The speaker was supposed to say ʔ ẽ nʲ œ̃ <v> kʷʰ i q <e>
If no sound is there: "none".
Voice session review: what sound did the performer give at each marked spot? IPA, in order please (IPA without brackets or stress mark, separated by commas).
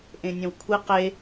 w, e